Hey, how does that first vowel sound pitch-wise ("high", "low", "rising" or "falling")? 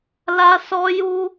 high